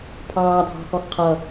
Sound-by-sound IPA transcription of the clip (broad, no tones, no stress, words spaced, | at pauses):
pʰɑː dʱɑ̤xɔxqʰʌ